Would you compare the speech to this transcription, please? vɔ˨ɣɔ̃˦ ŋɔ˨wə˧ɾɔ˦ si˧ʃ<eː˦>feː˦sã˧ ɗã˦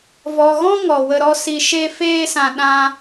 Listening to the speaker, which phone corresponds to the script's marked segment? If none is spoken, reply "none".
e˦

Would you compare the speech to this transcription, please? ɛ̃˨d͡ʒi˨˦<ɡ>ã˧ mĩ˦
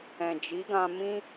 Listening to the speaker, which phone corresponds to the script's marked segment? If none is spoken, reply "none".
ɡ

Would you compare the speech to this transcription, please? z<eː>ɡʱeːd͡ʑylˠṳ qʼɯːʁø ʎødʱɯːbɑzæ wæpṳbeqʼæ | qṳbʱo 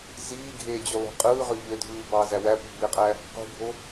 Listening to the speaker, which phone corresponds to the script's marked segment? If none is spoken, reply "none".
iː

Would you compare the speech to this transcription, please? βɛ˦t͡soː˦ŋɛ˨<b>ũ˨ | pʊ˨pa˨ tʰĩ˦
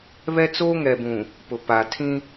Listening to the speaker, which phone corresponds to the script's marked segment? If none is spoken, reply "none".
b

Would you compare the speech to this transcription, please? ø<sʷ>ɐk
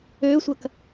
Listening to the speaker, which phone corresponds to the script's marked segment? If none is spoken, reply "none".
sʷ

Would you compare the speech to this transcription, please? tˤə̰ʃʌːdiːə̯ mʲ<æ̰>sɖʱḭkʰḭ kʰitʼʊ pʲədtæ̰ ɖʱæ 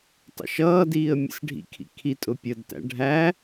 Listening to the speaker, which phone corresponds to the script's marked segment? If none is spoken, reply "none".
ə̰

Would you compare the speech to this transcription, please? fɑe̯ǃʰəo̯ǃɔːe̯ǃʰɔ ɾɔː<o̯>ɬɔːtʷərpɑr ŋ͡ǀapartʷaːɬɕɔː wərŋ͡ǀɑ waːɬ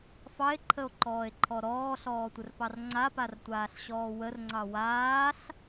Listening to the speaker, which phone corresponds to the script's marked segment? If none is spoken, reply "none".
none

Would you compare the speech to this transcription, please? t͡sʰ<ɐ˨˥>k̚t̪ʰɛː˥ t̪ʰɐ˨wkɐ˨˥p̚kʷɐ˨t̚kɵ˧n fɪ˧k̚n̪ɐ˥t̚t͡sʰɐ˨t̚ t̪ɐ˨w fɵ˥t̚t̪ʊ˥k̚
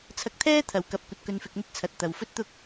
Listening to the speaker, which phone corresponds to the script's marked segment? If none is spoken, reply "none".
ɐ˧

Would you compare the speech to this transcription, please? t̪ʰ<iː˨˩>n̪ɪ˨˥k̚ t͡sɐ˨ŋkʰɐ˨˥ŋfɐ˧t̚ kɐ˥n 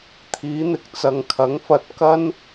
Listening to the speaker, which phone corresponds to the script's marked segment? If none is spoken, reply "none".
iː˨˥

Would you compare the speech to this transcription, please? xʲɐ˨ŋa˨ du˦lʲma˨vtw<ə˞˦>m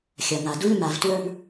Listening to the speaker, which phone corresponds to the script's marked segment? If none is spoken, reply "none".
ə˞˦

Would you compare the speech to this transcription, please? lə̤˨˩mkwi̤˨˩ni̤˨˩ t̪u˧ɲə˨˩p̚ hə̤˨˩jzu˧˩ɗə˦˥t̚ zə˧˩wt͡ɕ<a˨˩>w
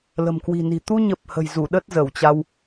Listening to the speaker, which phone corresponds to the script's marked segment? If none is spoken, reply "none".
a˧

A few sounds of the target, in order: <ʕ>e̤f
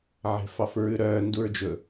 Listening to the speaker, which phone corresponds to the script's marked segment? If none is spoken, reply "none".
ʕ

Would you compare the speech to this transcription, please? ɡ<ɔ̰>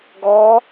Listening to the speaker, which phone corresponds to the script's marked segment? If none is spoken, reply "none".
ɔ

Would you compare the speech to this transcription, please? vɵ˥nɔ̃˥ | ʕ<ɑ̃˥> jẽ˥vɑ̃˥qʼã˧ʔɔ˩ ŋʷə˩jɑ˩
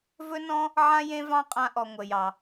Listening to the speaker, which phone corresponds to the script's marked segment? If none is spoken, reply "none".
ã˥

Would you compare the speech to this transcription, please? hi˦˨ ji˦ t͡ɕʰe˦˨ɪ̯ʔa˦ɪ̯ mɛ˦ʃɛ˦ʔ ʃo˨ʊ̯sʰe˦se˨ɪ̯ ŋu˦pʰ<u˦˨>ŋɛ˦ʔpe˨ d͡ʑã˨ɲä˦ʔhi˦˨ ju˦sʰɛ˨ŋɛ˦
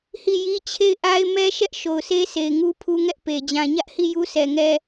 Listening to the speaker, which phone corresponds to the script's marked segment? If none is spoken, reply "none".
u˦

